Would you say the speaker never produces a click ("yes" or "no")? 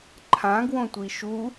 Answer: no